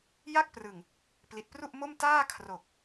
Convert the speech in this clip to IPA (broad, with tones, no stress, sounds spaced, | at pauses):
j a˥˩ k̚ p r ɯ˨˩ ŋ | p l i˨˩ t̚ p r u˥˩ ʔ m o˥˩ m t aː˥˩ kʰ r o˨˩ k̚